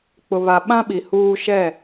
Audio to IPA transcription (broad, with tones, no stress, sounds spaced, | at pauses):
k͡p ʊ˨ β a˨ ɓ ã˦ ɓ i˨ h uː˦ ʃ ɛ˦˨